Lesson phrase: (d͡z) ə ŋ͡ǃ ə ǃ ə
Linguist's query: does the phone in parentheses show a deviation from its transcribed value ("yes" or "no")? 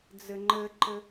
no